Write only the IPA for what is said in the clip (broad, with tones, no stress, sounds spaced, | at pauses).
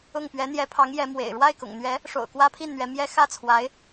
ʊ˥˩ ŋ p ɥ ɛ˧˥ n̪ j ɛ˧˥ pʰ ɑ˧˥ ŋ j ɛ˧˥ m w ḛ˨˩ ɪ̯ ɻ w a˥˩ ɪ̯ k ʊ̰˨˩ ŋ n̪ ɥ ɛ˧˥ | ʂ o̰˨˩ ʊ̯ k w ä˥ pʰ i˥˩ n n̪ ɥ ɛ˧˥ m j ɛ˥ x ä˥˩ t͡sʰ w a˧˥ ɪ̯